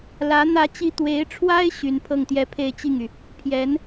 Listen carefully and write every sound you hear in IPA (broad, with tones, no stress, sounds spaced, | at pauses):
l ä˧˥ n̪ ä˥ t͡ɕ i˥ t̪ w e˧˥ ɪ̯ ʈ͡ʂʰ w a˥ ɪ̯ ɕ y˧˥ n pʰ ɤ˥˩ ŋ t̪ j ɛ˥ pʰ e˥˧ ɪ̯ t͡ɕ i˥˩ ŋ y˩ | pʰ j ɛ˧˥ n